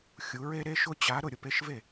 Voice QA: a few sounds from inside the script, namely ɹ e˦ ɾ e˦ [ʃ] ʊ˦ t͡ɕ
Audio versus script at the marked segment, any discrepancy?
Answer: no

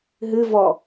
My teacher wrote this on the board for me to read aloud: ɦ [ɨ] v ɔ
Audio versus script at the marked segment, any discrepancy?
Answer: no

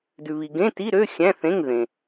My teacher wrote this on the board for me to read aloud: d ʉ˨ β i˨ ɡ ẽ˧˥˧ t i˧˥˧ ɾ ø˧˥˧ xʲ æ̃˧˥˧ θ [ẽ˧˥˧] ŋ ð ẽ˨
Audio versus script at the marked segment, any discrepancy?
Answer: no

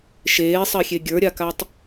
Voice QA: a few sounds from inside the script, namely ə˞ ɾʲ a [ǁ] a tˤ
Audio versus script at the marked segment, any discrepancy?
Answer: yes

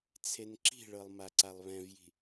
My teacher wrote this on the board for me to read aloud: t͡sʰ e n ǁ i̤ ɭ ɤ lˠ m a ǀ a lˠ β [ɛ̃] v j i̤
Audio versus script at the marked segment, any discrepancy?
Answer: no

